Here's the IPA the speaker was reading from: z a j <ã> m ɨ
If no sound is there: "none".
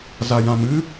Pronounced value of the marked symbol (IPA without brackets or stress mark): ã